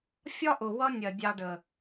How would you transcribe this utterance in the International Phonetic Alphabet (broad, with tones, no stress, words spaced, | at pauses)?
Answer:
fʲɒ˦ʔʊ˨ wʌ˦nʲɜ˨ dʲɑ˧ɖə˨